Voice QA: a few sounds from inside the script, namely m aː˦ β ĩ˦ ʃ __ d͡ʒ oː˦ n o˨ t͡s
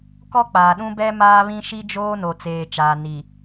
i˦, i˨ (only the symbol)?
i˦